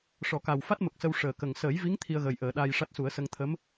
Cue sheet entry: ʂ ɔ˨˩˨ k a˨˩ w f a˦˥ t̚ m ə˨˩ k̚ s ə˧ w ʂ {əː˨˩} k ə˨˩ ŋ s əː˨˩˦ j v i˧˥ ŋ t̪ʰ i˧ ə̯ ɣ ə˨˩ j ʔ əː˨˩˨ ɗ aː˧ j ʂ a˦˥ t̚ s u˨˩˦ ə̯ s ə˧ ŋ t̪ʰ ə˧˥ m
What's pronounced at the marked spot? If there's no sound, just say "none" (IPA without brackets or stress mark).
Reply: əː˨˩